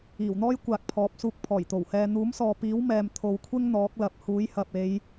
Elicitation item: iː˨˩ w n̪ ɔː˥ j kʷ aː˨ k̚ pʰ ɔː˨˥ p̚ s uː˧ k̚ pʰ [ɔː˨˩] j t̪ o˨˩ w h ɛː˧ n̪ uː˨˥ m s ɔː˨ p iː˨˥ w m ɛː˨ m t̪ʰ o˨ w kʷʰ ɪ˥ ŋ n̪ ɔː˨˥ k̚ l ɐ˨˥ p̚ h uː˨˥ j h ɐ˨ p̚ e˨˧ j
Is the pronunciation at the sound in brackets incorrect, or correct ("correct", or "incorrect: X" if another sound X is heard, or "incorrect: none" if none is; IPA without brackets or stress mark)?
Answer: correct